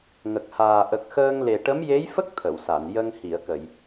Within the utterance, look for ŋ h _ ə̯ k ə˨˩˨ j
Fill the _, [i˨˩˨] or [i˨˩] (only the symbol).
i˨˩˨